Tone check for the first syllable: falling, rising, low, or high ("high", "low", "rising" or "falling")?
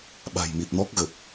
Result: low